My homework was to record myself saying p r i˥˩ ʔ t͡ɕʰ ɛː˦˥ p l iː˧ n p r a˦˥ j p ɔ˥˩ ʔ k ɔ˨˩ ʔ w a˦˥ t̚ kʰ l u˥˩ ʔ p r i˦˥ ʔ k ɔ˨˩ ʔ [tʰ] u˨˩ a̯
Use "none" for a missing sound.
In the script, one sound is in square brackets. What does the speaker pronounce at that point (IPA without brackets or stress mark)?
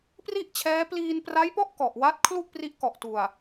t